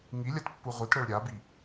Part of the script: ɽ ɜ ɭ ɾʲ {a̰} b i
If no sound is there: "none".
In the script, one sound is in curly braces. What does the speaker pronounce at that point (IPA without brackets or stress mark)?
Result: a